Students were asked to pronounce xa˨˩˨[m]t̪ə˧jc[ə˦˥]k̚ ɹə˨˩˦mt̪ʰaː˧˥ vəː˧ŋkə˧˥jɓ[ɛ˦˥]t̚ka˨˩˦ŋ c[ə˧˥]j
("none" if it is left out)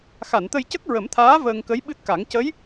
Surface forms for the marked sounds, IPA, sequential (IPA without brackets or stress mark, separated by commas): n, ə˦˥, ɨ˦˥, ə˧˥